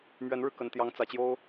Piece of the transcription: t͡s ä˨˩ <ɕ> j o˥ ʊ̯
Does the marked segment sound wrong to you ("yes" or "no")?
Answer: yes